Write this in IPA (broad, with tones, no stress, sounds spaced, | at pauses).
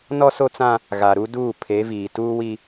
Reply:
n ɔ˦ s o˦ t͡s ã˦ | ɣ a˨ ɾ u˦ d uː˦˨ pʰ e˨˦ v iː˨ t uː˦ w i˦